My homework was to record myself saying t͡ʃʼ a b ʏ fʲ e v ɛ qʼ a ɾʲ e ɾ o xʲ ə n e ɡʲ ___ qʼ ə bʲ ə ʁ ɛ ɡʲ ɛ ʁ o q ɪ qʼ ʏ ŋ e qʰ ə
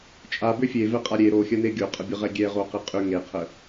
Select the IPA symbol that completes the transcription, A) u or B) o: B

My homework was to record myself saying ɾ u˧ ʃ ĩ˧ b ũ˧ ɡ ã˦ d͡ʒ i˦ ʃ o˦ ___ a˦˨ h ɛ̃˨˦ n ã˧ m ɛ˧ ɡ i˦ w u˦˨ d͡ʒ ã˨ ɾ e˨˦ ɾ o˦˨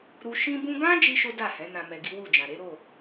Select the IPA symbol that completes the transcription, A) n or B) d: B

